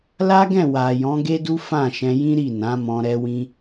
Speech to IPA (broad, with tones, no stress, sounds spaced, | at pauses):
l a˦ ɡ ɛ̃˦˨ w a˨ j ɔ̃˨˦ ɡ e˦ d u˦ f ã˦˨ ʃ ɛ̃˧ j ĩ˦ ɾ i˦˨ n ã˨˦ m ɔ̃˧ ɾ ɛ˧ w ĩ˧